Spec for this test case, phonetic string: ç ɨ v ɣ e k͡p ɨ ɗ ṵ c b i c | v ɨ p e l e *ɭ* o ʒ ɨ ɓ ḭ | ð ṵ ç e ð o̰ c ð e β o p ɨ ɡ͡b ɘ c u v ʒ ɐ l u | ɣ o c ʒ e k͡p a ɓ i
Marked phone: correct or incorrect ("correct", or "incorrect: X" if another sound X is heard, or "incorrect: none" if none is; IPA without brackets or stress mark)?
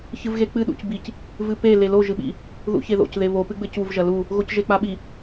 incorrect: l